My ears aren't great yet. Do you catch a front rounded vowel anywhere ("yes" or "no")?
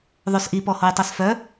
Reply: yes